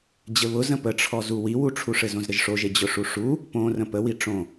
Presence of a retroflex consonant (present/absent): present